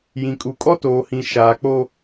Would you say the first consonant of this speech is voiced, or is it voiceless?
voiced